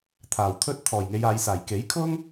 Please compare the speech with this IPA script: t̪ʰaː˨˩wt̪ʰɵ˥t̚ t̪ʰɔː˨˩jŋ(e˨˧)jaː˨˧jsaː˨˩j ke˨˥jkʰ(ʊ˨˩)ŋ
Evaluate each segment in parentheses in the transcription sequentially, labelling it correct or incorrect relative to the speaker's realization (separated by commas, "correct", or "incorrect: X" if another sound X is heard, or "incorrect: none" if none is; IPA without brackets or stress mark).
correct, incorrect: ʊ˥